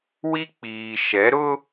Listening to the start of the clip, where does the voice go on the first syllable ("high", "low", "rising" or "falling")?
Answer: high